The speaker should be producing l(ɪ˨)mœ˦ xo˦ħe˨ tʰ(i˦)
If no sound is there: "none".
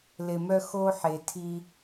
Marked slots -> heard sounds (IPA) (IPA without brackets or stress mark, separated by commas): ɪ˨, i˦